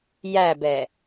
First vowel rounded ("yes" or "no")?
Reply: no